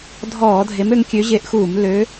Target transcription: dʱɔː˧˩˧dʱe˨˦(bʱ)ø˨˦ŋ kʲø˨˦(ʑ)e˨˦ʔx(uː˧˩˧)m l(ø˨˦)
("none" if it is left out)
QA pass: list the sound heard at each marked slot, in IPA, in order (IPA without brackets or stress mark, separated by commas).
m, ʑ, uː˧˩˧, ø˨˦